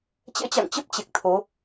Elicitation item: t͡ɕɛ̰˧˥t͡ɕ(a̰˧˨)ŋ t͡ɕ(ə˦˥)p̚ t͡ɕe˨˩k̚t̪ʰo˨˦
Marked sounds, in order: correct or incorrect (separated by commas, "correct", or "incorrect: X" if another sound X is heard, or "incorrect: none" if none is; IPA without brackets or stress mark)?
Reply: correct, correct